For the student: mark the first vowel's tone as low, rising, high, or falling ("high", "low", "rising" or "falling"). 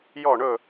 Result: falling